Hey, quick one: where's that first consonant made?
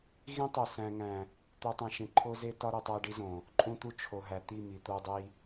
velum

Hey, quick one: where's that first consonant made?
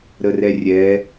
tongue tip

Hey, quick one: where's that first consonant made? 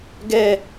velum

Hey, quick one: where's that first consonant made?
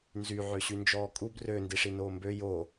tongue tip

